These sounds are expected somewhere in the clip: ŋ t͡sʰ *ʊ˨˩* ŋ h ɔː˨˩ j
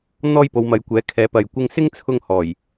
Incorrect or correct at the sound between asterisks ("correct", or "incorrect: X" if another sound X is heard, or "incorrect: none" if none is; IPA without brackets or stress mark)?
incorrect: ʊ˧